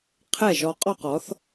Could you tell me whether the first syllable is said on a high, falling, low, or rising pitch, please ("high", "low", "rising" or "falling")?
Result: falling